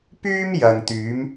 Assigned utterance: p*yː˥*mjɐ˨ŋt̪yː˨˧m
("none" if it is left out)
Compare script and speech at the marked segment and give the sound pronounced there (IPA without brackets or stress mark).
yː˥